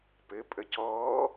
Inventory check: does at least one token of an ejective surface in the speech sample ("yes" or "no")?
yes